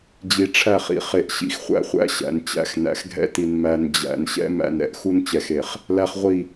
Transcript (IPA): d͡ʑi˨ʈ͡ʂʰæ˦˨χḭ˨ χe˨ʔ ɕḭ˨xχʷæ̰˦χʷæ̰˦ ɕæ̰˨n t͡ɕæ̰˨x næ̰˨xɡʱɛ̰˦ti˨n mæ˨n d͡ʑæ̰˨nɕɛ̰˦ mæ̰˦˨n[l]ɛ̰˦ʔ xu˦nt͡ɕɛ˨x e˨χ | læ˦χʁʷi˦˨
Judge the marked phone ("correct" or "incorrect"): incorrect